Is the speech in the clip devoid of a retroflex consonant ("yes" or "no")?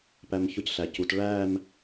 no